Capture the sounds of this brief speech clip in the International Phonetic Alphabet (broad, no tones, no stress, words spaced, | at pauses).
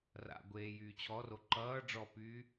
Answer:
ra̰ɡʷeː jyːt͡ɕʰɔro ǃʌː ɖ͡ʐɔpyː